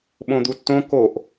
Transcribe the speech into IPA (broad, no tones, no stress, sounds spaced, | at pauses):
ɓ õ d̪ u tː õ k o ʔ